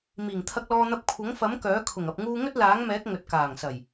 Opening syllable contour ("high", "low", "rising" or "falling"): low